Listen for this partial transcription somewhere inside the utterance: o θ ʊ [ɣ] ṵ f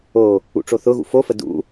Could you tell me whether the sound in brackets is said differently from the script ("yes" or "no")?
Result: no